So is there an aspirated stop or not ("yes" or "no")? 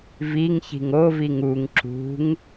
no